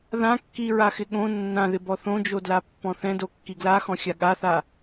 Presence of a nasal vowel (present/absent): present